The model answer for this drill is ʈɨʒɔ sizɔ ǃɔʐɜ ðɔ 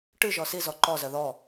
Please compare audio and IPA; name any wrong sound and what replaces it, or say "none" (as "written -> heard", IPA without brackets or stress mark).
ʐ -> z